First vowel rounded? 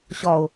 yes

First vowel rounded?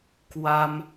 no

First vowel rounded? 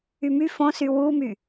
yes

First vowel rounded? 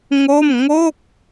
yes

